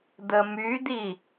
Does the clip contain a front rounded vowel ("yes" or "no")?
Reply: yes